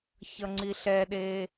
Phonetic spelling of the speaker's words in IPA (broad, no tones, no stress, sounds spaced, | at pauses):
ç ʌ ŋ͡ǀ i ɬ ɛ ɗ e